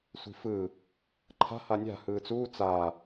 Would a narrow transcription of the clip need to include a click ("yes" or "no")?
yes